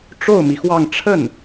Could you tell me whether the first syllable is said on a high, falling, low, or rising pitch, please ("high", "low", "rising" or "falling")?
falling